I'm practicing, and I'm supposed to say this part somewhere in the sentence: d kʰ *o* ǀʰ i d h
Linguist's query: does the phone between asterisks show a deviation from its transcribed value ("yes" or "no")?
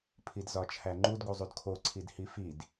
no